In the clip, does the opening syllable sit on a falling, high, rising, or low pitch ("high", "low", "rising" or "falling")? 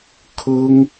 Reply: high